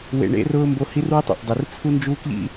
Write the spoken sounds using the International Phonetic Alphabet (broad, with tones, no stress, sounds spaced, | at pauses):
w ḛ˨ ɳ ḛ˦ r ʊː˥ m b o˦ h i˥ r w ɪ˥ tˤ ɛ̰˨ ʔ dˤ i˨ r t͡sʰ u˥ n d͡ʒ uː˥ k ʎ ḭ˥